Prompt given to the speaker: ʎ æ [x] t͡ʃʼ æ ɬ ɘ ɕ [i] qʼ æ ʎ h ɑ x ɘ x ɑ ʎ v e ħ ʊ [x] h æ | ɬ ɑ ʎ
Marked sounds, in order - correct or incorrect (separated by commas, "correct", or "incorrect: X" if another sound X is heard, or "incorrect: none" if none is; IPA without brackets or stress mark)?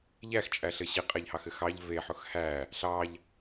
correct, correct, correct